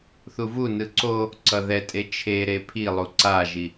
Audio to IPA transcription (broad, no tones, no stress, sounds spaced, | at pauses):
θ u v u n ɯ ǀ o | ǀ ʌ ð ɛ tʼ e t͡ʃʰ e ɾ e pʰ i lˠ u ǀ a ʒ i